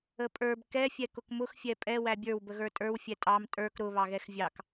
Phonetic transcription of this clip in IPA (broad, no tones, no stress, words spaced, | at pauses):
əpʼə˞b kɛ fʲɛkʊkmʊx fʲɛpʼɛ wæbʲə˞w bəɣə˞tʼə˞w fʲɛtʼɑm tʼə˞k ɾʊ βɑɣɛxvʲɑk